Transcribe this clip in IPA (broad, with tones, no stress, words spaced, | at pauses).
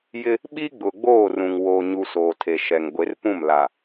jɪ˦ | ɓi˦ɡ͡bʊ˨ɡ͡boː˦˨rũ˨ŋ wo˨ɲu˨ soː˨tʰe˨ʃɛ˨ŋ ɡʷe˨˦rpũ˦˨m la˨